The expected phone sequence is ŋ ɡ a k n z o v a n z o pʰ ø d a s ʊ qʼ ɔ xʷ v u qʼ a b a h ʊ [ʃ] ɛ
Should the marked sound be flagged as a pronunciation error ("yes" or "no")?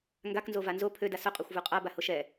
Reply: no